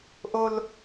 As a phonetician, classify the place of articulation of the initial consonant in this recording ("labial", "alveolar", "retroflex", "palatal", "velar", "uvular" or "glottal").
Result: glottal